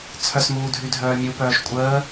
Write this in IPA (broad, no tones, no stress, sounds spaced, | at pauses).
t͡sʰ œ s m uː dʱ y dʱ œː mʲ u p œː ʃ kʷʼ əː